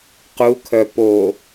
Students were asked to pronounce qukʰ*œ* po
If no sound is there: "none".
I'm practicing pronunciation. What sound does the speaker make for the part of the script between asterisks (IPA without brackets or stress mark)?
œ